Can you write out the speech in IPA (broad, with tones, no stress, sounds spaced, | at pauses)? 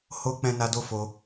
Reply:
h o˦ k͡p ɛ̃˦ n a˦ d o˦ f o˧